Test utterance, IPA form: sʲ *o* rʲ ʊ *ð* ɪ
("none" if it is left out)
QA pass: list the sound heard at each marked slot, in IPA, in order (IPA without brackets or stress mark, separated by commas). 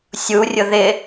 u, ð